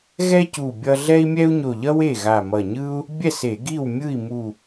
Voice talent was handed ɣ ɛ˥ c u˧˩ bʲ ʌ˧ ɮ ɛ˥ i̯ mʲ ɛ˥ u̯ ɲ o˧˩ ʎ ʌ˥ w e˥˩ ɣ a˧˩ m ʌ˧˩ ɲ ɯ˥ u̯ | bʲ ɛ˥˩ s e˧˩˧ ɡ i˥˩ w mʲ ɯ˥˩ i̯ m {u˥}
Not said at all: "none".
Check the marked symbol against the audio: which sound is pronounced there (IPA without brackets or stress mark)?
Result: u˧˩